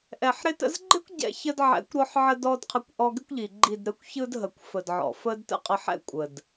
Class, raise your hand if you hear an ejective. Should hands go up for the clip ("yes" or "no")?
yes